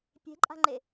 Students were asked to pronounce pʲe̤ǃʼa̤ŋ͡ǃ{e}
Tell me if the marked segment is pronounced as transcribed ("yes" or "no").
yes